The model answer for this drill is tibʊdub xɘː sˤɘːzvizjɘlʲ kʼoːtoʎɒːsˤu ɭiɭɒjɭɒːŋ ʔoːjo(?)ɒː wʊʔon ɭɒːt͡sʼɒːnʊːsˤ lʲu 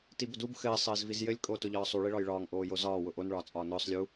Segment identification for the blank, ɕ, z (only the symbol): z